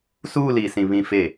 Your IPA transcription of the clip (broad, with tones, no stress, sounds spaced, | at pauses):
s uː˦˨ l iː˨ s ĩ˨ β ĩ˨ f e˨